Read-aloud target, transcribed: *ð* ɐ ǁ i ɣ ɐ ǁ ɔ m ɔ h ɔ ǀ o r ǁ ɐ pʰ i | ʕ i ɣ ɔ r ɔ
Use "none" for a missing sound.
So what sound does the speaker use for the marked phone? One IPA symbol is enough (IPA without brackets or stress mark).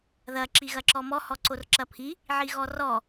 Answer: ð